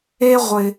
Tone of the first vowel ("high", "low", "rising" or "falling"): high